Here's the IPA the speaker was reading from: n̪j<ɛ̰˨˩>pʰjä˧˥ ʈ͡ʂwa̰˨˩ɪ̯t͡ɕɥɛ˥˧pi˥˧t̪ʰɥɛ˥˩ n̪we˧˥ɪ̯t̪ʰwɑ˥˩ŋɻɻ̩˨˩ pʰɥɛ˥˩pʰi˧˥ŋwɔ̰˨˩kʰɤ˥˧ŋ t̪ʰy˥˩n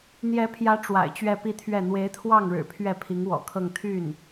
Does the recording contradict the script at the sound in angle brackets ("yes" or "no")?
yes